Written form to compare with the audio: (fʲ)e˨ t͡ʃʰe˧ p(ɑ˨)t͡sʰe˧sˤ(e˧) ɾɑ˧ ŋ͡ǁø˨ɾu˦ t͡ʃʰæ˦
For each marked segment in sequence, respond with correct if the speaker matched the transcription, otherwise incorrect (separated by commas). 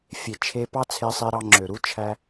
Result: correct, incorrect, correct